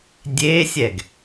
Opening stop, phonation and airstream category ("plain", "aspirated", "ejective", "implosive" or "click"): plain